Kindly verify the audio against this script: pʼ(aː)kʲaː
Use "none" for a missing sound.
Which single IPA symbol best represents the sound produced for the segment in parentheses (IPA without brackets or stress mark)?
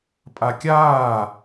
a